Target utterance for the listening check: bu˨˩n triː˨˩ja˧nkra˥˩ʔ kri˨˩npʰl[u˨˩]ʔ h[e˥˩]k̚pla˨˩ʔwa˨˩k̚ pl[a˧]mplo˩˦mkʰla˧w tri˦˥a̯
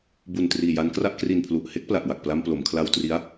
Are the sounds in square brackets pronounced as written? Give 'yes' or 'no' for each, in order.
yes, no, yes

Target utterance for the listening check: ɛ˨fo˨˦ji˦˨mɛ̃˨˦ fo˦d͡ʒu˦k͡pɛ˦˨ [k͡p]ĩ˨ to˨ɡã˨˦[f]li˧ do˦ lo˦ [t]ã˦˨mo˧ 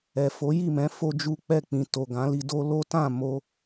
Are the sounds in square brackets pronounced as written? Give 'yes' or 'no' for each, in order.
yes, no, yes

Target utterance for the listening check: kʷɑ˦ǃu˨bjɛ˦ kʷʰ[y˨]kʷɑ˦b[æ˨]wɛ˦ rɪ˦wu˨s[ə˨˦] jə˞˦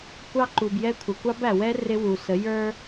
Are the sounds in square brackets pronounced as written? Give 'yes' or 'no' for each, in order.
no, yes, yes

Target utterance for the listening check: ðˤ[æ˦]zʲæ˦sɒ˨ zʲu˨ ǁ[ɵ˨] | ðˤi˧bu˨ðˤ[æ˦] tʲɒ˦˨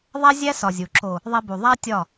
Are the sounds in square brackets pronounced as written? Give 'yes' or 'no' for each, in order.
yes, no, yes

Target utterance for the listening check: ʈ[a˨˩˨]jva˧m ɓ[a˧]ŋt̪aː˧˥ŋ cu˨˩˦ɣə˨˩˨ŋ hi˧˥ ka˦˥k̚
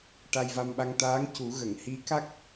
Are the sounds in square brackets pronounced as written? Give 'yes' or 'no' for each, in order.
no, yes

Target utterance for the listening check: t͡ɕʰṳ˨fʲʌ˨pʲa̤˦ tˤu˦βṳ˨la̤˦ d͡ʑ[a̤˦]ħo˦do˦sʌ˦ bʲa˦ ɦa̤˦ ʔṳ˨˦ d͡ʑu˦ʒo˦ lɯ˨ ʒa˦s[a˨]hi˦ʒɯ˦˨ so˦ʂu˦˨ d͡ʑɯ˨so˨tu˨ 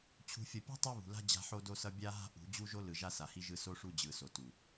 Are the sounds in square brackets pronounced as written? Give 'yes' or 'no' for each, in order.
yes, yes

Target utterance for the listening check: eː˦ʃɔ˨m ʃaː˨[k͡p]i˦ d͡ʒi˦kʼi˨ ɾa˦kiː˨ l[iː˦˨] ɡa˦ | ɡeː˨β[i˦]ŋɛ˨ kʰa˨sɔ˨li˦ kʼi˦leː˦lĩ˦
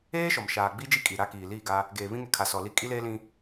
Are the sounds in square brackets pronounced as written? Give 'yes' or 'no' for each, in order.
no, yes, no

